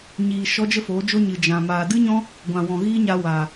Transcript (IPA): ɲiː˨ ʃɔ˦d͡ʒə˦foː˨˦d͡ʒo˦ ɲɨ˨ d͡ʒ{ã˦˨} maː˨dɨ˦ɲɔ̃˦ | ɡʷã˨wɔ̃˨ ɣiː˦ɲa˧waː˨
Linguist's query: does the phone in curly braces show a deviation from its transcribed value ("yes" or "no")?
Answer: yes